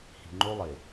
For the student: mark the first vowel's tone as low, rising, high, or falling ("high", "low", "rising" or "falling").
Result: low